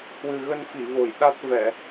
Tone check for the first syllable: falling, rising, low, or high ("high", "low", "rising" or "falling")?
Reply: low